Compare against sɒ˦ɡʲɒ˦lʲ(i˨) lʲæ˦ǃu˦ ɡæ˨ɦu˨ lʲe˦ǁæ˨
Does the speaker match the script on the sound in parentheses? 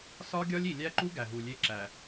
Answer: yes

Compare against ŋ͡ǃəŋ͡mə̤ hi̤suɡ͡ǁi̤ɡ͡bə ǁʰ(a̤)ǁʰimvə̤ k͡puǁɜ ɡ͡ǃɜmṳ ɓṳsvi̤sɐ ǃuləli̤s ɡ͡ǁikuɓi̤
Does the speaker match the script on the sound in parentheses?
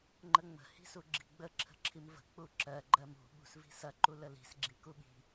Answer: no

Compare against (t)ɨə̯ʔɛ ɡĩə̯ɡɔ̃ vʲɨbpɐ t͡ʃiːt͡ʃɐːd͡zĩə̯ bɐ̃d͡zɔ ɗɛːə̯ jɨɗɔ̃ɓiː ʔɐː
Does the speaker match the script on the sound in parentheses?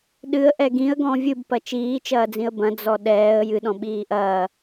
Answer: no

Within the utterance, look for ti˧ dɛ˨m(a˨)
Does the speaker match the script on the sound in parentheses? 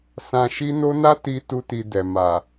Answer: yes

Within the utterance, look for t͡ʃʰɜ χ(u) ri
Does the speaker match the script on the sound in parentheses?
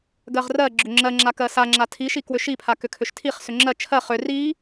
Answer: no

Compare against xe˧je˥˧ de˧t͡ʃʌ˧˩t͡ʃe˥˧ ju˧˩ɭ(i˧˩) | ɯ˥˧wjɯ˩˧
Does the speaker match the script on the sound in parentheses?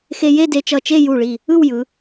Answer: yes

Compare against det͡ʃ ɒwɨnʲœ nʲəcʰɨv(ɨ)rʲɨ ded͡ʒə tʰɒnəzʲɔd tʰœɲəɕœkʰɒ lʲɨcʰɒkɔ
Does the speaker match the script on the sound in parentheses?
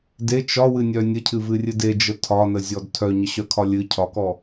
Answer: yes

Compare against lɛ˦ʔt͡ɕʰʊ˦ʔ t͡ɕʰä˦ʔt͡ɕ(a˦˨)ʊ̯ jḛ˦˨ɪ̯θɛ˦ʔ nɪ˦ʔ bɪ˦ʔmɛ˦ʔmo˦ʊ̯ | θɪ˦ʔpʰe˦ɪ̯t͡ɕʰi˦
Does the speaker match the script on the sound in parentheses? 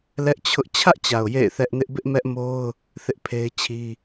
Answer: no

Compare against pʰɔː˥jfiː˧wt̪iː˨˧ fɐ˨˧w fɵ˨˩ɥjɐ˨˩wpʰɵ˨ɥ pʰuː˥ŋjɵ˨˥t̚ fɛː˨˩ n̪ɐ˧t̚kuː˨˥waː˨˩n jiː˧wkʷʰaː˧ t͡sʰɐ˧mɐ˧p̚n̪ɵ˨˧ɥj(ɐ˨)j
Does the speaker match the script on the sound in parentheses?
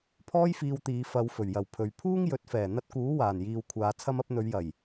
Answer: no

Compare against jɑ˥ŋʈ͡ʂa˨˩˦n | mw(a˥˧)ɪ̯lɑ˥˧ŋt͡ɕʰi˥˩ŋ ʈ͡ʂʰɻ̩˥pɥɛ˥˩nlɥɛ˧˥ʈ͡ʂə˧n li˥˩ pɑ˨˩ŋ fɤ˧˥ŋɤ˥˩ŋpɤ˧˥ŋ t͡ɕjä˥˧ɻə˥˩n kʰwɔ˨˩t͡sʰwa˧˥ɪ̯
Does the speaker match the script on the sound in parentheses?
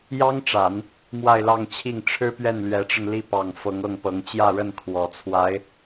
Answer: yes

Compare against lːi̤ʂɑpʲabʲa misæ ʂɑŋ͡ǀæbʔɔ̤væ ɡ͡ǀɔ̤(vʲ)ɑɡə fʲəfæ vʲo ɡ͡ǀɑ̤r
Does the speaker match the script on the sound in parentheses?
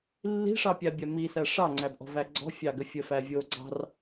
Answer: no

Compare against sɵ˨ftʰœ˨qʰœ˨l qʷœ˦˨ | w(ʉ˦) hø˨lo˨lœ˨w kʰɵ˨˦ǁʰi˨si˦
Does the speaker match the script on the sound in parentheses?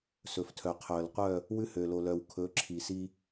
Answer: yes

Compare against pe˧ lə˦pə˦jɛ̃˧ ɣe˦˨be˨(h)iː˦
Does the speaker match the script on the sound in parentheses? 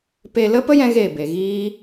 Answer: no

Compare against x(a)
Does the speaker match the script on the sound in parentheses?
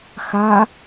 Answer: yes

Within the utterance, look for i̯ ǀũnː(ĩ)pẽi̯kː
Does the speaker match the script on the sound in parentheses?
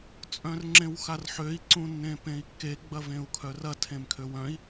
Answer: no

